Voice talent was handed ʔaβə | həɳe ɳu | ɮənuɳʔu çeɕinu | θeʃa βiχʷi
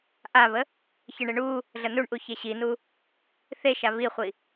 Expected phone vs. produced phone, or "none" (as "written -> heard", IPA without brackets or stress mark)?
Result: h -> ç